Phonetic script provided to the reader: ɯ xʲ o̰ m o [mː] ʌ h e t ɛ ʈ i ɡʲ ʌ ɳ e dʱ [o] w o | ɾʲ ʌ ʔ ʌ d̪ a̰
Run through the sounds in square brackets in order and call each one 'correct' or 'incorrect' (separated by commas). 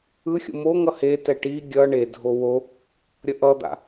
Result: incorrect, correct